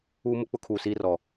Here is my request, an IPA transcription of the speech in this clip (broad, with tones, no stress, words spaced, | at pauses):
uː˦mʊ˦ k͡pʊ˦kʰuː˨siː˦rɔ˨